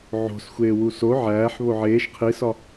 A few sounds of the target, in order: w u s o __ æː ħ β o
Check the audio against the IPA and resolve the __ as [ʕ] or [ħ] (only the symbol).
ʕ